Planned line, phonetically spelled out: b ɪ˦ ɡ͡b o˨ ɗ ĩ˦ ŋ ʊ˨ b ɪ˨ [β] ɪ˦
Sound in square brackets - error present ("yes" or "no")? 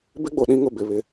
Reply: no